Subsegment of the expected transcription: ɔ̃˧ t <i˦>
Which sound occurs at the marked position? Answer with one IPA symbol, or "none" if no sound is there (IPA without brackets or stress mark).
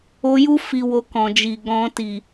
i˨